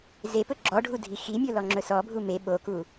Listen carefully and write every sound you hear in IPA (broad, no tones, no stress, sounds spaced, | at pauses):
z e p ɵ ɡ͡ǁ ɔ ɖʱ u dʱ i x i mʲ o l ɔ ŋ͡ǁ ɵ s ɔ bʱ u m e ɓ o k u